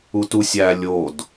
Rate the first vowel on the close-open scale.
close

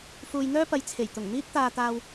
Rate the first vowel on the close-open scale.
close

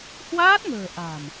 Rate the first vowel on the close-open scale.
open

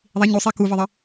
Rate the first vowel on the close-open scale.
close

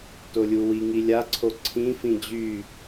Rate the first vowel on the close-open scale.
mid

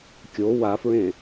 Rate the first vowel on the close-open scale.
mid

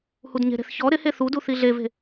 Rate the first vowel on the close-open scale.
close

